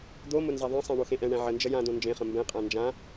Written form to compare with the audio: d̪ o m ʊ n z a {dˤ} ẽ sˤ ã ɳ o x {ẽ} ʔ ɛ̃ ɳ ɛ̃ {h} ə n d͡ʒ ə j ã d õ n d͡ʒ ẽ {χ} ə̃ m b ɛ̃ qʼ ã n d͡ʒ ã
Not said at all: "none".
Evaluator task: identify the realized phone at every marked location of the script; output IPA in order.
ðˤ, ẽ, ʕ, χ

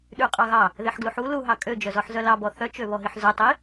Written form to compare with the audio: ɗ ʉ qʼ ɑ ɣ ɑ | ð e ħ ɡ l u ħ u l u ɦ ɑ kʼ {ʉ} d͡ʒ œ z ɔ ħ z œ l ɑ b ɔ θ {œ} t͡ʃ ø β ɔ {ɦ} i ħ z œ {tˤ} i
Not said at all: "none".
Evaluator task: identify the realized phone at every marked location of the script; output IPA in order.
ø, œ, ɦ, tˤ

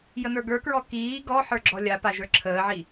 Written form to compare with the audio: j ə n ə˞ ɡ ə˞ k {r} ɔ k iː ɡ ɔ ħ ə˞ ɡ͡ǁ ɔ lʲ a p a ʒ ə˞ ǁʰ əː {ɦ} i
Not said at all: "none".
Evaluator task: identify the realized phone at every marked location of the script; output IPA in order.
ɹ, ʕ

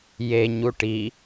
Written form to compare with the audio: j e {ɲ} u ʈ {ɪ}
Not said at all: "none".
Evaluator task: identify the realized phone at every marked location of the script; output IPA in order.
ɲ, i

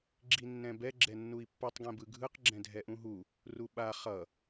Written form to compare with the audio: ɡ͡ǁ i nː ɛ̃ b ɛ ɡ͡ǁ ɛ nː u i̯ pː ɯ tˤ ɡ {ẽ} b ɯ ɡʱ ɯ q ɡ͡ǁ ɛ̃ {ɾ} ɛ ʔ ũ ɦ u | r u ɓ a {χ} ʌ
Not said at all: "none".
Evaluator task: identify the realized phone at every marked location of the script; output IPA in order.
ɛ̃, dʱ, χ

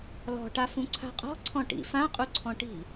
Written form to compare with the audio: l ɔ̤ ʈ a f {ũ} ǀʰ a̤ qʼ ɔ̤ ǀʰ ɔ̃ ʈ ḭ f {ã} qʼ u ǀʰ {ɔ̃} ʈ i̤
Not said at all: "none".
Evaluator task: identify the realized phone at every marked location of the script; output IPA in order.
ũ, ã, ɔ̃

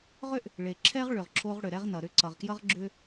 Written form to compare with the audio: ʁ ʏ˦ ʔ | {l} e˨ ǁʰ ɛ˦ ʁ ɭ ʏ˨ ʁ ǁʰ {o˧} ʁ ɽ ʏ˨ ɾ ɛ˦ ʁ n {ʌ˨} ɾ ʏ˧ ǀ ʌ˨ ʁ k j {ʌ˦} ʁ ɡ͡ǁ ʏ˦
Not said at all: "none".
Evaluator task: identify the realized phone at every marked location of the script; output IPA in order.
ɭ, o˧, ʌ˨, ʌ˦

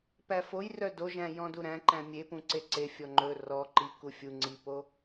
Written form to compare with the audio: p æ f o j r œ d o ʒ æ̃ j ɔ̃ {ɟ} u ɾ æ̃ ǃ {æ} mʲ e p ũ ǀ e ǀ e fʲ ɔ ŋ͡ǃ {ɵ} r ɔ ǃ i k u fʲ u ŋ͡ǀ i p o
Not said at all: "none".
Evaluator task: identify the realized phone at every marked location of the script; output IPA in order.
d, æ̃, ɵ

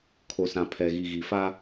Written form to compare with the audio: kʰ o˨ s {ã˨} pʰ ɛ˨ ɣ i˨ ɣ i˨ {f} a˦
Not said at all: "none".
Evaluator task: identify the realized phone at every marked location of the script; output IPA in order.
ã˨, f

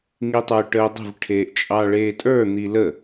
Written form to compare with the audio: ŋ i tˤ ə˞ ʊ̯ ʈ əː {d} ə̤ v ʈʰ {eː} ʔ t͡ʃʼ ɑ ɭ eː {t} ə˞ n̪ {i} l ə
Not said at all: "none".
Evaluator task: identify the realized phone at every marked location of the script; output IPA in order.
dˤ, eː, tʼ, i

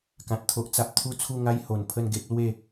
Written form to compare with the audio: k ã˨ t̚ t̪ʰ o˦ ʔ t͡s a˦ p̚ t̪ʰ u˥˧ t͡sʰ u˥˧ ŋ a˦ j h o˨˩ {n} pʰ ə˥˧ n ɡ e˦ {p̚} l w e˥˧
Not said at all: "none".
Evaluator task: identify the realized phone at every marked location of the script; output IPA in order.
n, p̚

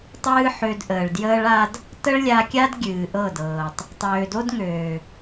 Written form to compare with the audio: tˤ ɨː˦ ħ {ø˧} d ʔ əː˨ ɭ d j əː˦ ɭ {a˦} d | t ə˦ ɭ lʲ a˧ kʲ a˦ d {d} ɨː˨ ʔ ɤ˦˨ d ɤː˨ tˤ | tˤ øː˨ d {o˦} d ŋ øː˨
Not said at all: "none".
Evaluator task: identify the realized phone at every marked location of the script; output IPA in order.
ø˧, a˦, ɡʲ, o˦

